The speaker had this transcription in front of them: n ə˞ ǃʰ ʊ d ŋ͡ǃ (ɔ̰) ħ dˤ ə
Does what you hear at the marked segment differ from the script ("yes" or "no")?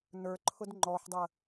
yes